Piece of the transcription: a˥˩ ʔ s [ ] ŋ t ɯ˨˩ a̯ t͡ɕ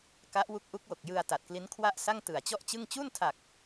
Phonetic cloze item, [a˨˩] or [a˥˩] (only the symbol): a˥˩